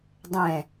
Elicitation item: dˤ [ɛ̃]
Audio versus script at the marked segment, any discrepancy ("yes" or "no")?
no